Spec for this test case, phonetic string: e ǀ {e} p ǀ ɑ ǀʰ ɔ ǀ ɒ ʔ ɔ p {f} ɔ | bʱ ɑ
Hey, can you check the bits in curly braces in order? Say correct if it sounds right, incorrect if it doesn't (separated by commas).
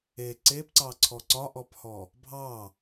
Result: correct, incorrect